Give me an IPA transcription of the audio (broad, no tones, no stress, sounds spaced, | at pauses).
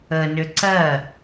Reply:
ə n ʏ ǀ ɜ